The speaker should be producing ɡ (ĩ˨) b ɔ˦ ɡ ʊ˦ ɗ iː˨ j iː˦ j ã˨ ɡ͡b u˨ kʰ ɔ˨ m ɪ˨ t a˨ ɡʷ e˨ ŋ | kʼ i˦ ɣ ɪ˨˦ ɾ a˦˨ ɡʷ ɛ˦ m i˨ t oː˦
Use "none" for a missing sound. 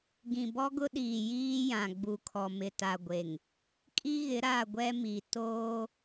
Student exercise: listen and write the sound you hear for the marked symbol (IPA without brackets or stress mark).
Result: ĩ˨